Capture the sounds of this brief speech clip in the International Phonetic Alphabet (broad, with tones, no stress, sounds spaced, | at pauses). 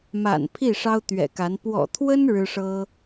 m a̰˨˩ n pʰ i˥˩ ʂ ɑ˥ ʊ̯ t̪ ɥ ɛ̰˨˩ k a˧˥ n p w ɔ̰˨˩ t̪ʰ w ə˥ n ɻ ɻ̩˥ ʂ ɤ˥